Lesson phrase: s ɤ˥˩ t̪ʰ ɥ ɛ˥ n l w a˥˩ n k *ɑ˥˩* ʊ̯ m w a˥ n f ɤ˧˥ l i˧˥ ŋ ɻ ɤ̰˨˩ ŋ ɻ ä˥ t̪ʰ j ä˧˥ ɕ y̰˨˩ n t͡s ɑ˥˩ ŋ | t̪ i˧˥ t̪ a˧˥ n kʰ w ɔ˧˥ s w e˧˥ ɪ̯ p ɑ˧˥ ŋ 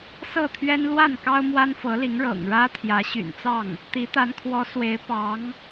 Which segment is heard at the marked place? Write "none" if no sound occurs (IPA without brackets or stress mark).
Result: ɑ˥